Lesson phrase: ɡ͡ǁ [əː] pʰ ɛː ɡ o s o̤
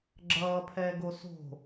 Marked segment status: incorrect: ʌː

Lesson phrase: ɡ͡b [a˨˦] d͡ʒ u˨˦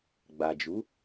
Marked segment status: incorrect: a˨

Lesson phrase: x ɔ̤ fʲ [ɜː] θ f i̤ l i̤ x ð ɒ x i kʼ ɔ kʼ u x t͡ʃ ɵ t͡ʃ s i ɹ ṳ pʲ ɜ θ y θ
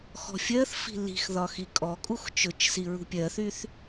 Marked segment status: incorrect: ɜ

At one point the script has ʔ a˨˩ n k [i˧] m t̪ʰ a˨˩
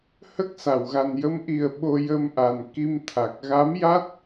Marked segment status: correct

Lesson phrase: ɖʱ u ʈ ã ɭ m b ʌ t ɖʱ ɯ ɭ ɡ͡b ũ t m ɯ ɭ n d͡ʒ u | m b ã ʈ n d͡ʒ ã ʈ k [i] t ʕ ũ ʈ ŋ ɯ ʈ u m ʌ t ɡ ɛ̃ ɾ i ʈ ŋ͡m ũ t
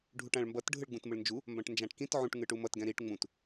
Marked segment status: incorrect: ĩ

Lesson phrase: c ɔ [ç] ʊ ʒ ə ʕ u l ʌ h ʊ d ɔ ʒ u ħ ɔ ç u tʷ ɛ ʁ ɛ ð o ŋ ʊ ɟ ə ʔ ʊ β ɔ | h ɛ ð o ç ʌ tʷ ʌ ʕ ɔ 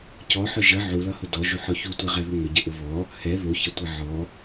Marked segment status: incorrect: ħ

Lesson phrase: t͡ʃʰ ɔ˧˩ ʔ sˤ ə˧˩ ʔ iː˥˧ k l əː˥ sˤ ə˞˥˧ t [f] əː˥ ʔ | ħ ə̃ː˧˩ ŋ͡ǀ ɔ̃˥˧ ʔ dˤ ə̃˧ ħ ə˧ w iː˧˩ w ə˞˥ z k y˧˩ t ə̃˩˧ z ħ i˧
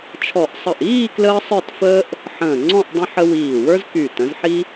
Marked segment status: correct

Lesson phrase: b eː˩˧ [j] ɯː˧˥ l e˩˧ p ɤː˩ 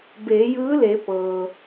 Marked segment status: correct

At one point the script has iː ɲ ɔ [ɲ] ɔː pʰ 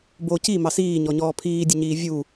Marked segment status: correct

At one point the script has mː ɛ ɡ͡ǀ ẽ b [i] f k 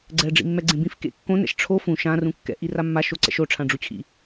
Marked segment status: incorrect: ĩ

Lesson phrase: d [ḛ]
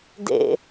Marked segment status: correct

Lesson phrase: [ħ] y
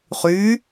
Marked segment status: incorrect: χ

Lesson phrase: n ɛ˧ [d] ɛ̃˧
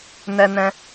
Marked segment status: incorrect: n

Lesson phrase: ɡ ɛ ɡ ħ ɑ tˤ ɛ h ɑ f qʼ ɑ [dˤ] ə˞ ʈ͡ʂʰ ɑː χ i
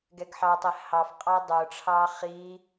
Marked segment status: correct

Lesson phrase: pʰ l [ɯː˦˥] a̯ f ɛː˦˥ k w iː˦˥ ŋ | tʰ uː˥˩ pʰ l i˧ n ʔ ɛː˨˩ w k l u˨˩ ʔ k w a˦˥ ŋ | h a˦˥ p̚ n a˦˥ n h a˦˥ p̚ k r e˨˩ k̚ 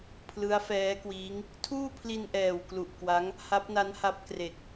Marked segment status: incorrect: ɯ˦˥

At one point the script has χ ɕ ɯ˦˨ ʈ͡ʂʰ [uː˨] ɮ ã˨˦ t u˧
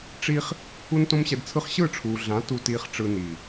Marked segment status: correct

